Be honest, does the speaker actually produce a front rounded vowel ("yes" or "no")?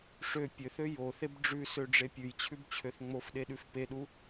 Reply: yes